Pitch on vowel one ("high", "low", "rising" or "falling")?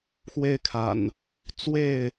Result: high